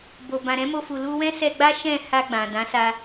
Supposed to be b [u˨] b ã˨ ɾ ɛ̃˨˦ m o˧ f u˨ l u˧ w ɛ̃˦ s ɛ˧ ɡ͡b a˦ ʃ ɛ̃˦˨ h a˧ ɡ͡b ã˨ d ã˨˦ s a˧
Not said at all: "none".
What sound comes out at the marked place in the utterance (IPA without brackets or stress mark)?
o˨